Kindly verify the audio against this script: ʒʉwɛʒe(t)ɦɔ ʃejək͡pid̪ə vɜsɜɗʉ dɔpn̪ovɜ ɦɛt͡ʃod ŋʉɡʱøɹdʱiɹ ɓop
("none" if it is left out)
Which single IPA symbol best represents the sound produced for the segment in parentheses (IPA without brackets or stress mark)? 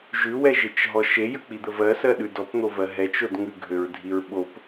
t͡ʃ